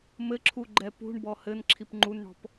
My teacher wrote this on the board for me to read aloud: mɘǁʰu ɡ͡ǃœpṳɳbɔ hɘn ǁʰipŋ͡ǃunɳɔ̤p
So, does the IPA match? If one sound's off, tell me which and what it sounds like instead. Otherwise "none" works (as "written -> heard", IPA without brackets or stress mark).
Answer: œ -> ɛ